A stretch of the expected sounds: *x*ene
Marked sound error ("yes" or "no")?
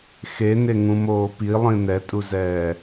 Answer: no